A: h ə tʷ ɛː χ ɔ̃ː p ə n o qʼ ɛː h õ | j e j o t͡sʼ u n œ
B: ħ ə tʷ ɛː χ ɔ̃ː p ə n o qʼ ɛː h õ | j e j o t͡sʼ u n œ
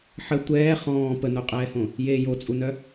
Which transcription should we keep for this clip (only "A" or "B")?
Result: B